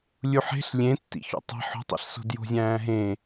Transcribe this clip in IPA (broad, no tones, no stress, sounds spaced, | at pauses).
lʲ u ħ e̤ ɬ lʲ ẽ tː ḭ ç o̰ tˤ e̤ ħ o̤ tˤ ḭ ɬ s o̤ d j o̤ zʲ æ̃ː ɦ ẽ